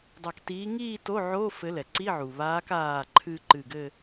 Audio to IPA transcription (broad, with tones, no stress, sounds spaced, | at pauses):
dˤ a˧˩ k t iː˧˥ ŋ iː˥˧ t o˧˥˧ ʕ o˧˥˧ f ɘ˧˥ l ɛ˩ ǀ i˧˥˧ ʕ u˩ β aː˧˥ k aː˧˩ ǃʰ ɨ˧ ǃ ɨ˧˩ ɡ ɘ˥˧